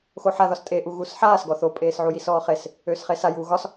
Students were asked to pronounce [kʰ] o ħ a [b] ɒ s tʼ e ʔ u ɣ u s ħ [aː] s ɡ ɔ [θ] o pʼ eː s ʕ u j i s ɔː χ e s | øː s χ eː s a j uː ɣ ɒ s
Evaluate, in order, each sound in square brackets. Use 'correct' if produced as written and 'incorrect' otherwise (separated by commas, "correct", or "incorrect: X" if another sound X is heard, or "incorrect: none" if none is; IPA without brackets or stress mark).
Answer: incorrect: x, incorrect: ð, correct, correct